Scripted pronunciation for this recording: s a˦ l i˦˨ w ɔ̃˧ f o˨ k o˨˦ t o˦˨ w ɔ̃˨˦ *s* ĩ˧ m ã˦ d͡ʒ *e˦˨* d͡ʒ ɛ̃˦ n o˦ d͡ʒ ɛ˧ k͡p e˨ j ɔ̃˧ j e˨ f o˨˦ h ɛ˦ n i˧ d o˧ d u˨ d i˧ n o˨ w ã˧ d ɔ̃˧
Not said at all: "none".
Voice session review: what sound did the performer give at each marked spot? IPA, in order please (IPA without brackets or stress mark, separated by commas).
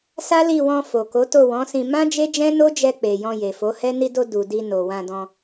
s, e˦